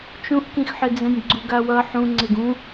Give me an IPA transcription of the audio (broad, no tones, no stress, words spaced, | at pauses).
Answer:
t͡ʃũʔkĩxħɪd͡zɛ̃nʲ ɡ͡ǀuɡawʌ ħũ ŋ͡ǀeɡũ